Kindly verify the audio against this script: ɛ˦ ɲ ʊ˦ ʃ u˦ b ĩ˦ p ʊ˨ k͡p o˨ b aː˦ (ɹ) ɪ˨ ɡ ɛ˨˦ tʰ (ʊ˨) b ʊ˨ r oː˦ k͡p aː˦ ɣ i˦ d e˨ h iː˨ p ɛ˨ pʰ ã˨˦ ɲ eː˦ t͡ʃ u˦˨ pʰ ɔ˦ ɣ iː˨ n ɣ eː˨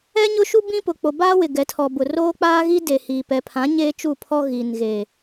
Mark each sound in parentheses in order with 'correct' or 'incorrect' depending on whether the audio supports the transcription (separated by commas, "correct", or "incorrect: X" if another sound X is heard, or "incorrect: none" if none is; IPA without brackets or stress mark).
incorrect: w, incorrect: ɔ˨